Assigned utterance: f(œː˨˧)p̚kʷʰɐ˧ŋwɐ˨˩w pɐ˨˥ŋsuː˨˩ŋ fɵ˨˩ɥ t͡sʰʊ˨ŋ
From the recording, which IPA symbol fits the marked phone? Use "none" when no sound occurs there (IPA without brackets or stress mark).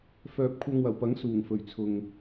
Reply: œː˨